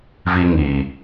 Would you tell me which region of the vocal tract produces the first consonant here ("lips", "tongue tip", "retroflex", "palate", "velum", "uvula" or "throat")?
lips